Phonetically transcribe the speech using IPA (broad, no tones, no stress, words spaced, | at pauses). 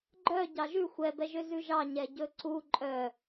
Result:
ɡ͡ǃœ ɟɑʒʉ xʷɛ bɛʒøzʉʒɑ ɲɛɟɵǀu ǃʼœ